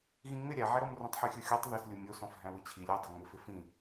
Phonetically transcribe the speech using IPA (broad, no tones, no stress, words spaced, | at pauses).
ɣĩŋ͡mɪ ɾʲæʕæɾɔm rũtˤħyxʲɯxʲotˤ ðɪslʲu mʲosɔ̃f ɦæ̃wɯt͡ɕʰilʲ udˤoŋ͡mɪ fɪfĩ